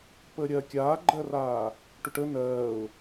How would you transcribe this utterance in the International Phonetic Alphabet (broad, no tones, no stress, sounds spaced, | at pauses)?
p əː ɾʲ ɜ kʲ aː ɡ͡ǃ ɜ r aː | ʈ ʊ ʈ ə n ɜː ʊ̯